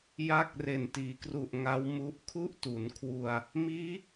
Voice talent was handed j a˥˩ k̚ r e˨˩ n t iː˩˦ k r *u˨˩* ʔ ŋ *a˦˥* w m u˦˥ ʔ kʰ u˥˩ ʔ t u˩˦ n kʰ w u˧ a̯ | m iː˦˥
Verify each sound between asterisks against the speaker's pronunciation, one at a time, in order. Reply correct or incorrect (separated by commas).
correct, correct